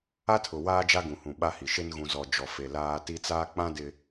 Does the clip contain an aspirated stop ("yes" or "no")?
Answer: yes